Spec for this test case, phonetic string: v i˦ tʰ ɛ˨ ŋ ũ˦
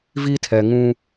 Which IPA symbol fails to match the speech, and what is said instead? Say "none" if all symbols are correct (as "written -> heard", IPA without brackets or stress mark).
none